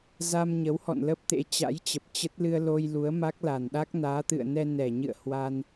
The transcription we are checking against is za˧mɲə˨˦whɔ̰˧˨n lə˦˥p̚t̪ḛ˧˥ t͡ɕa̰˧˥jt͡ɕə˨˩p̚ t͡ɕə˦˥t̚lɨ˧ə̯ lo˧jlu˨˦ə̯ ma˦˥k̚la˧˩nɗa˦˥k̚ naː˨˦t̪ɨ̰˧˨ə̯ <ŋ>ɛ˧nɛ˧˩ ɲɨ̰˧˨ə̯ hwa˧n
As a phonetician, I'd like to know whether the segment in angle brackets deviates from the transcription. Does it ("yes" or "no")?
yes